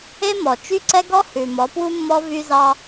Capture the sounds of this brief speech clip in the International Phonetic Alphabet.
e˦ m ɔ˨ t͡ʃ y˦ ǀ ɛ˦ ɡ ɔ˦ h ʉ˨ m ɔ˨˦ p w u˦ mː ɔ˦ v y˦ z ɑ˦

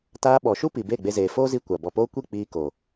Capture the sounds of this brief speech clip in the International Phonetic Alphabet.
t aː˧ ɓ ɔ˨ ʃ u˦ p i˨ b e˦˨ ɡ͡b e˧ z eː˨ f oː˦ z i˧ kʷ a˨ b ɔ˨ p oː˦ kʷ i˦˨ k͡p iː˧ k o˨

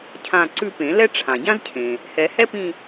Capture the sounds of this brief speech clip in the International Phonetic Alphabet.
cʰ ã˦˨ ǀ ʉ˦˨ p ẽ˨˩˦ l ɛ˥ ʈ͡ʂʰ ã˩ ɟ ã˥ z cʰ ẽ˩ | h ɛ˨˩˦ h ɛ˥ p ĩ˦˨

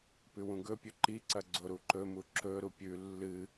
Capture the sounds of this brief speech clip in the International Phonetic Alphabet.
p ʉ w ũ ɡ ɵ pʲ ɵ ǃ i ǀ ɐ ɡ͡ǀ o ɾ u ǃ ɵ m u ǁ ɵ ɾ u pʲ ʉ lː ɨ

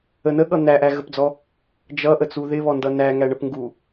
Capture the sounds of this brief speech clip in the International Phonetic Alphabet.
ə n ə ɠ ʌ n̪ æ ʔ æ ɣ ə p d͡z ɔ | d͡ʒ ʌ ʔ ə t͡s u ð ɪ β ɔ n d ʌ n æ ŋ æ ɳ ə p ŋ ɡ u

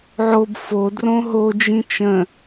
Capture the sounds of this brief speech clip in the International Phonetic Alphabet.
ʕ o b f o d r õ ɦ o d͡ʒ ĩ t͡ʃ ə̃

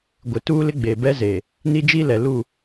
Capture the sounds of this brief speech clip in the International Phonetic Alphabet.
ɡʷ ɪ˨ t uː˦ l ɪ˦ ɡ͡b eː˨ b ɛ˦ z eː˨ | n i˦ d͡ʒ i˦ l ɛ˨ l u˦˨

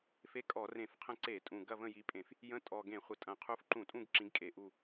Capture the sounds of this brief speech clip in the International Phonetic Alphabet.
f e˧˥˧ kʼ ɔ˧˩˧ r ẽ˧˩˧ f qʰ ə̃˦˨ ǀ e˧˩˧ tʼ ũ˨˩ ɡ ɐ˦˨ v ə̃˦˨ j i˨˥ pʼ ẽ˧˩˧ f | j ə̃˧˥˧ tʼ ɔ˨˩ ɡ ẽ˧˩˧ χʷ ə˨˩ tʼ ɐ̃˨˩ qʰ u˨˥ f ǃ ũ˧˩˧ tʼ ũ˦˨ ɡ ǁ ĩ˨˥ ɡ kʼ e˨˩ ʔ u˦˨

